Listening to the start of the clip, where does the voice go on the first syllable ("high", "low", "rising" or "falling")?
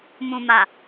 low